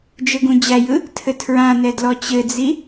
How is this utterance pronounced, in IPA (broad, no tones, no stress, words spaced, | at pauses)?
d͡ʒɘɡũd͡ʑæjɯ | tʰɘtʰɹãnɛ dlɔt͡ɕɘd͡zi